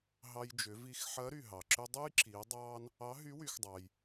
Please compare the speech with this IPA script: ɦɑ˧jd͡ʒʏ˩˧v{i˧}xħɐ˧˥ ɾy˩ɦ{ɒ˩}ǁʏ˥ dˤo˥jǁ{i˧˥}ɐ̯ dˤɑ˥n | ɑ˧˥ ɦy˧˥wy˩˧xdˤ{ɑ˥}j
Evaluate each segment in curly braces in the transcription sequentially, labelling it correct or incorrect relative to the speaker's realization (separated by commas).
correct, incorrect, incorrect, incorrect